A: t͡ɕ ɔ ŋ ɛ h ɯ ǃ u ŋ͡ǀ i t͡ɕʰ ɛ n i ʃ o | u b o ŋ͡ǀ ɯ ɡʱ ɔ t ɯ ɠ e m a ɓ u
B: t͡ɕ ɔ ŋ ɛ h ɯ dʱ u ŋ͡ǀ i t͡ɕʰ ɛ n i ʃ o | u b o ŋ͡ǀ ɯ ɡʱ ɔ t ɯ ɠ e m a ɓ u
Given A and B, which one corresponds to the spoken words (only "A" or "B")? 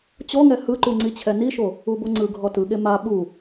A